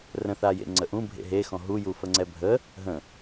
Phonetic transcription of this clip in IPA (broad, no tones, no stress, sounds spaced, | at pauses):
r ə̃ θ a j ḛ ŋ͡ǀ ə ʔ ũ bʱ ḛ ɦ e x ɔ̃ ɦ u j u f ə ŋ͡ǀ ɛ bʱ ə | ɦ ə̃